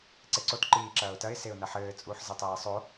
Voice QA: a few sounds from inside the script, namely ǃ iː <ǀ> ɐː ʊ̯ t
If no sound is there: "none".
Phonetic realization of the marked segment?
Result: ǁ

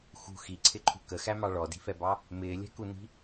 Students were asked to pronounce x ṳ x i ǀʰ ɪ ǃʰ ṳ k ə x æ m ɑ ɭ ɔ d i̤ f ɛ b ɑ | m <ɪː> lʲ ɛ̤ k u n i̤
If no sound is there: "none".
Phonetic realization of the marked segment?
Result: ɪː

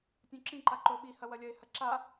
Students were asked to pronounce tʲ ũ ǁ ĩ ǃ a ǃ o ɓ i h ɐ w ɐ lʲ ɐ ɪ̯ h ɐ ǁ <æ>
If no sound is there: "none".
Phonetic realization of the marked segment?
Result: a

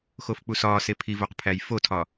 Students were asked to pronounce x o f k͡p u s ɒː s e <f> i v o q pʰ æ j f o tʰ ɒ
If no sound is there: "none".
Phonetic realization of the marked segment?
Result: pʰ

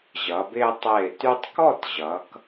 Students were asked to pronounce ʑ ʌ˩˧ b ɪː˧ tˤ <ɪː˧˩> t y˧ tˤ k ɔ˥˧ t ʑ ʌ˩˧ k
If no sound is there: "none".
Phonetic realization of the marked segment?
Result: ɪː˧˩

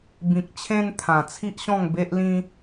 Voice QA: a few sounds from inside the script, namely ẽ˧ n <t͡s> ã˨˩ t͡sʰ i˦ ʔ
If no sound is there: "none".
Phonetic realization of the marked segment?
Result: t̪ʰ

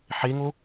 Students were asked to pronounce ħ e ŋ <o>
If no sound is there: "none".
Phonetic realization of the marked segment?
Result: o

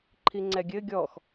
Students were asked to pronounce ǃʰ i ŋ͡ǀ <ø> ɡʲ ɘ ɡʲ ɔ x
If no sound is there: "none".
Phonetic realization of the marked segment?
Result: ɛ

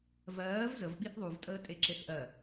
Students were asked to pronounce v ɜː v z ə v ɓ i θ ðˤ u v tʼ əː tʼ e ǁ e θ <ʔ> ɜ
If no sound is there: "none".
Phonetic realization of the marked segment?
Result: ʔ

